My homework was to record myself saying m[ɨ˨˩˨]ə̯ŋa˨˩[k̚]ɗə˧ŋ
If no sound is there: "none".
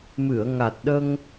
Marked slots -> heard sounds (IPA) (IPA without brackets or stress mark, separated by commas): ɨ˨˩˨, t̚